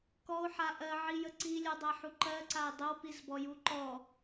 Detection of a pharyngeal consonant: present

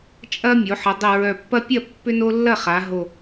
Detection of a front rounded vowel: present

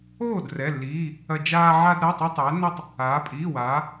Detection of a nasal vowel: absent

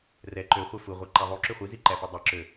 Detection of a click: present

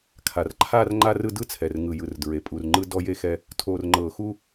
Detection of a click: present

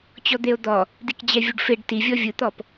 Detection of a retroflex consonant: present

